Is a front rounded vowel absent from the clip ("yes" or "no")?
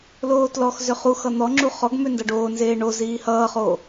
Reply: no